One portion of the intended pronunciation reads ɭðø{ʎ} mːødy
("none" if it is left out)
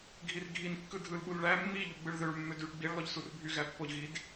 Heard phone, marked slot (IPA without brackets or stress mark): ɭ